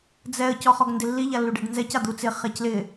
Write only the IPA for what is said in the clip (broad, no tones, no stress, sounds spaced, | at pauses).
d͡z ɛ ə̯ c ɔ χ ɔ ɡ n d ɪ lː i ʎ a lː u ɖ e ɖ n z ɛ c a d̪ u t͡s ɪ χ ɛ c l ɪ